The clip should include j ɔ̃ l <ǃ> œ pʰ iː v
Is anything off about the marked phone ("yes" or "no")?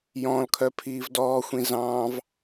yes